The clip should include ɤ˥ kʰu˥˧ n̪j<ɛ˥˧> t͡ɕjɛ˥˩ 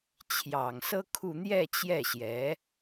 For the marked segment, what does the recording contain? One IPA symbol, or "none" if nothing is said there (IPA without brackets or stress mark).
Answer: ɛ˥˧